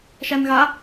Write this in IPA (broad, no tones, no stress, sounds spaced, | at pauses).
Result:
ʃ æ n ɣ a